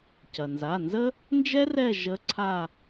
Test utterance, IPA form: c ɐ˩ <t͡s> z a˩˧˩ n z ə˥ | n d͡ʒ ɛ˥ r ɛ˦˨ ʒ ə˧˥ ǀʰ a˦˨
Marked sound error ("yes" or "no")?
yes